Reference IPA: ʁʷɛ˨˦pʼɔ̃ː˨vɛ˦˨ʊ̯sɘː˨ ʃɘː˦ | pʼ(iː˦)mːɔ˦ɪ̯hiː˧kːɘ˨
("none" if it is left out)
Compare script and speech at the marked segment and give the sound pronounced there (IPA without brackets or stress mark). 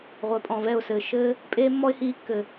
eː˦